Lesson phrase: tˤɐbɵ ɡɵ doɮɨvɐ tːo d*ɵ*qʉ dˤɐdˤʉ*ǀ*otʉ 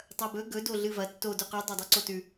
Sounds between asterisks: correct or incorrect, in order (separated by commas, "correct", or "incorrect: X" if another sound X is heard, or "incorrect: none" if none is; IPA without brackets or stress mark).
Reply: correct, correct